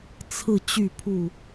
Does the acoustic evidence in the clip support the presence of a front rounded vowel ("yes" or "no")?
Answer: yes